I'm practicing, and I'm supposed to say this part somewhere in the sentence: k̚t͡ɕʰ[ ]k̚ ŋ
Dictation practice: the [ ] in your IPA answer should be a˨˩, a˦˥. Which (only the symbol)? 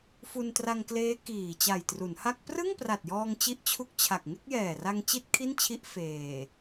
a˨˩